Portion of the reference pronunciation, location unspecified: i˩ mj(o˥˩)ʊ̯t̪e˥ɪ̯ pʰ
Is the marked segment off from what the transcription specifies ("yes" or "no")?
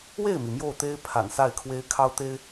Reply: no